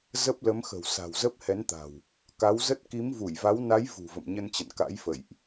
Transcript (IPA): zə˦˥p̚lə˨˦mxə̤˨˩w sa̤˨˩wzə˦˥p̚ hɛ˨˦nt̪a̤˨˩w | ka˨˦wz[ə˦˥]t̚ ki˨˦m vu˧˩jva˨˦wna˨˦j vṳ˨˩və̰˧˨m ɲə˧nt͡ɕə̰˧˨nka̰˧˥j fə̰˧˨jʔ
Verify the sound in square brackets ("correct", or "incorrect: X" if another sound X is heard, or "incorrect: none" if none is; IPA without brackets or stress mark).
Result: correct